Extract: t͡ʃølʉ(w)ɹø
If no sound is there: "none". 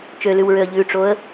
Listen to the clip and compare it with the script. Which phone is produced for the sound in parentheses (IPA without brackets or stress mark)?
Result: w